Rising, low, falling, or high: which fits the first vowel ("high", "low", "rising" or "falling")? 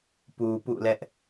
low